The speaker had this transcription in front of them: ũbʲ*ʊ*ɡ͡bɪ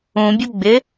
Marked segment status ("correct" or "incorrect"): correct